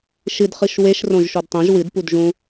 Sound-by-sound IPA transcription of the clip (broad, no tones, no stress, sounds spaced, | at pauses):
ʃ ɨ d χ ɨ ʃ w e ʃ r õ ʒ ʃ o d tˤ ẽ ʒ w ɨ d p u d ʒ ũ